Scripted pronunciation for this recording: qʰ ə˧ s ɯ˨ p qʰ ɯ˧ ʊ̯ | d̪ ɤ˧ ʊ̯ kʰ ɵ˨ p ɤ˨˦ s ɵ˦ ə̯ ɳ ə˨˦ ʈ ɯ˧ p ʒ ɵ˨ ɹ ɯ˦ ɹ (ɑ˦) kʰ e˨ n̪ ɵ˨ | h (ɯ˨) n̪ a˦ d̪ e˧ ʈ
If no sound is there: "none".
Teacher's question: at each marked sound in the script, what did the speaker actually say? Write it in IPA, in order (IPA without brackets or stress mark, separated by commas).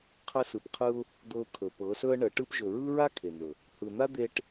a˦, ɯ˨